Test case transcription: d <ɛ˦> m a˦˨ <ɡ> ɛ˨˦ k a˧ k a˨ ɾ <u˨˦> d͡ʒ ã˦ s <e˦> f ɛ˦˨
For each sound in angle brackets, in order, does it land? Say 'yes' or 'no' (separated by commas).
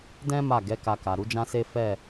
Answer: no, yes, yes, yes